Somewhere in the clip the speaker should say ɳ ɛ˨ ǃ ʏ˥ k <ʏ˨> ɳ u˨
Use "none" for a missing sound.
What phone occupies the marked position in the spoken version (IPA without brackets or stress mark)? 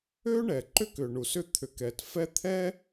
ʏ˨